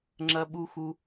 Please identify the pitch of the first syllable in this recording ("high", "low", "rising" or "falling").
high